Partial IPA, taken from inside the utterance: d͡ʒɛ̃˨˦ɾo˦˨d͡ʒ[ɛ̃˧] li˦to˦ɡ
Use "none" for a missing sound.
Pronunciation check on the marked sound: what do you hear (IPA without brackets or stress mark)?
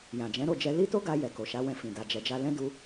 ɛ˧